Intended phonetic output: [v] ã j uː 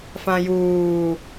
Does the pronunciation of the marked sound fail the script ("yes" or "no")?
yes